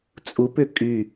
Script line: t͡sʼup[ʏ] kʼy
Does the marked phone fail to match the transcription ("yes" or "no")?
no